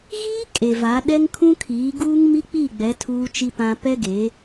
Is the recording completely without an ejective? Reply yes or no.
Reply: no